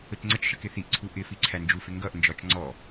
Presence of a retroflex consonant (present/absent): absent